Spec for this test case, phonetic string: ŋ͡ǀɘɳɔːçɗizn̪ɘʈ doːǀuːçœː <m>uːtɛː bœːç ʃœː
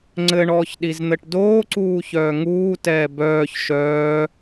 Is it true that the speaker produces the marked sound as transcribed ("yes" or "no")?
no